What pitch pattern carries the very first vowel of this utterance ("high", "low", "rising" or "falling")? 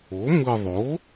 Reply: rising